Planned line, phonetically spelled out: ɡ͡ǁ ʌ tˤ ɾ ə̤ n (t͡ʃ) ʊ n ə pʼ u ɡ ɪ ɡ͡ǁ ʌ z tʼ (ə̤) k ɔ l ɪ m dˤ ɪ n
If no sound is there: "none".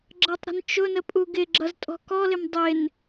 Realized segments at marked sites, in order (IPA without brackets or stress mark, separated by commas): t͡ʃ, ɔ̤